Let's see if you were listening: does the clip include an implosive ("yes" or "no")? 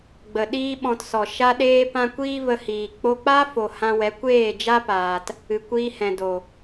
yes